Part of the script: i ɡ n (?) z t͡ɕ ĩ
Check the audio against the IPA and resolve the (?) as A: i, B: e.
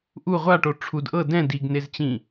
B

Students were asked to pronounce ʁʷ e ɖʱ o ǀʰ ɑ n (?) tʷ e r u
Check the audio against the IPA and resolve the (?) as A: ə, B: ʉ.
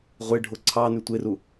B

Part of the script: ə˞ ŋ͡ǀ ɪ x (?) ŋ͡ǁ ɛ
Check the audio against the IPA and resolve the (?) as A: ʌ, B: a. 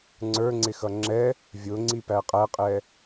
A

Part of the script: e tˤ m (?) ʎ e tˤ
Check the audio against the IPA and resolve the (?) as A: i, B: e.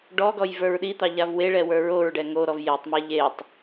B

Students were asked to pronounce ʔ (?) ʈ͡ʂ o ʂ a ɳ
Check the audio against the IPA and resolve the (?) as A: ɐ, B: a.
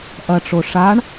A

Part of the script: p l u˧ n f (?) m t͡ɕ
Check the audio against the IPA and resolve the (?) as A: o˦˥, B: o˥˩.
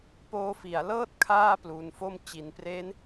B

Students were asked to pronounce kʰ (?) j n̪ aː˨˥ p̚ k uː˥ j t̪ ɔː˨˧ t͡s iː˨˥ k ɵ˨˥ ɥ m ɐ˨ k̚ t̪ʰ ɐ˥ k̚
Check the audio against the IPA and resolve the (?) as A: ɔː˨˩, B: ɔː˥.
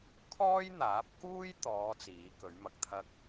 B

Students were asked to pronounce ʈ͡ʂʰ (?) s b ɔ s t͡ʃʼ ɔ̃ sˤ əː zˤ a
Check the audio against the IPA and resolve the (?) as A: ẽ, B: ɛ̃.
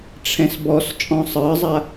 B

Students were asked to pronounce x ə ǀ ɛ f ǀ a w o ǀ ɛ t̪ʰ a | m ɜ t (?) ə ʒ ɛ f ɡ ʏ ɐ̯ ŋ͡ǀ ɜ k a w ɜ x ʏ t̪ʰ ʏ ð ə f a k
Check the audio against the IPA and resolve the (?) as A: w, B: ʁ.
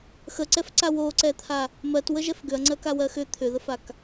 A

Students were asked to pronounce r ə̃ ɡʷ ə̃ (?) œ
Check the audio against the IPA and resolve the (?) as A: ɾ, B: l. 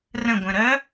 A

